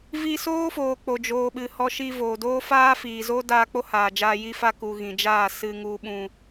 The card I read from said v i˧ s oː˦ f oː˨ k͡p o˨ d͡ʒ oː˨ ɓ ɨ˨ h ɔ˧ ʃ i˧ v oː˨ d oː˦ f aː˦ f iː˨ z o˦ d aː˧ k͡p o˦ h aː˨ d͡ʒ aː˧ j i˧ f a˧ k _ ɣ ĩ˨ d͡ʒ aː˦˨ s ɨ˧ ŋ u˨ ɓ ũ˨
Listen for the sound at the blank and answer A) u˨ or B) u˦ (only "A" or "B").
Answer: A